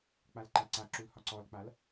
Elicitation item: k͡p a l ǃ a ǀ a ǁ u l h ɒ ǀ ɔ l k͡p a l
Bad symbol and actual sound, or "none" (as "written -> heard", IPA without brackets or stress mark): none